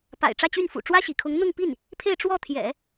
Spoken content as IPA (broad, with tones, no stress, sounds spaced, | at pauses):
p a̰˨˩ ɪ̯ ʈ͡ʂ ä˥˧ t͡ɕ y˥˩ n f ṵ˨˩ ʈ͡ʂ w ä˥ ɕ ḭ˨˩ kʰ ʊ˧˥ ŋ n̪ ʊ˥˧ ŋ p i˥˩ n | pʰ e˥˧ ɪ̯ ʈ͡ʂ w ɔ˥˩ t̪ʰ j ɛ̰˨˩˦